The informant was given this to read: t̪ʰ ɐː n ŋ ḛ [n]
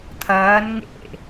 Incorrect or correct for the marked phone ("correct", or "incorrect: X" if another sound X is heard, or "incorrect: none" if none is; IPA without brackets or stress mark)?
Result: incorrect: none